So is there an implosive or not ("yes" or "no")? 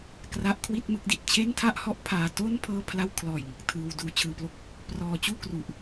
no